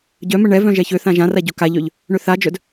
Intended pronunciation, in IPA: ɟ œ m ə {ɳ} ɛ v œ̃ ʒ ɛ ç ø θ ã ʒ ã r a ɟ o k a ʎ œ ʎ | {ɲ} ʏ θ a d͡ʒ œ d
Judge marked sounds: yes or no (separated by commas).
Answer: yes, no